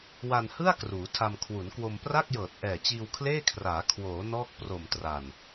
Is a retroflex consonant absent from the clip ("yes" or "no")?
yes